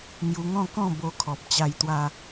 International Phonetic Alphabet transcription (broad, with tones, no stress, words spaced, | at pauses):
ŋju˧ŋɔ̃˥˧ kɔ̃˥˧ bo˧ kʰɔ˨p̚t͡ɕa˧jt̪wa˧